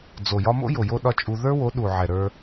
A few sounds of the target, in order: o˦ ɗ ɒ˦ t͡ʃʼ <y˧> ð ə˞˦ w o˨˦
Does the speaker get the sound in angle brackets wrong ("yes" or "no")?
yes